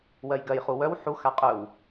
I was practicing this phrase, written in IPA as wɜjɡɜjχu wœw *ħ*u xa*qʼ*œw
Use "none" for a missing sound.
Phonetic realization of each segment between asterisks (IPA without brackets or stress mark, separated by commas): ħ, qʼ